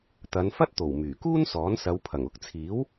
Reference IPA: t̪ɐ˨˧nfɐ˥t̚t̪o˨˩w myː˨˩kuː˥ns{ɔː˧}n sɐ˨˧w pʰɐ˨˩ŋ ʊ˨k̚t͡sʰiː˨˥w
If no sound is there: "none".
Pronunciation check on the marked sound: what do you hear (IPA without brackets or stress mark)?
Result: ɔː˨˥